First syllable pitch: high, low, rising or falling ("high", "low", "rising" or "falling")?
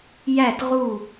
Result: falling